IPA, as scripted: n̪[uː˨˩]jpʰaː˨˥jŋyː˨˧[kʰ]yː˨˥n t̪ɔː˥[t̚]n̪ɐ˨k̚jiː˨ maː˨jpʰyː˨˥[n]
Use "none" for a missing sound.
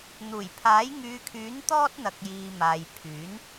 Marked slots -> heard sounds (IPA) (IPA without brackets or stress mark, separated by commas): uː˨˩, kʰ, t̚, n